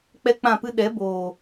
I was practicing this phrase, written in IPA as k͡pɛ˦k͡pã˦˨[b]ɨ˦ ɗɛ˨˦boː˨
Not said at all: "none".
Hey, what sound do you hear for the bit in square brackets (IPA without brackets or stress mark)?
p